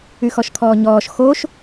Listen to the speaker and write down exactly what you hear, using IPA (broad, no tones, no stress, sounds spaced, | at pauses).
y x ɔ ʃ kʰ ɔː ɲ ɔː ʃ x o ʃ